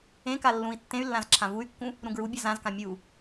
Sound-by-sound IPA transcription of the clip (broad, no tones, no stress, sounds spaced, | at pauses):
ẽ k a lː ũ i̯ tː ẽ y̯ lː ã z ǁʰ ã v u y̯ kː ũ | ɾ ũ ɡ ɹ u bʲ a z ã z k ã mʲ u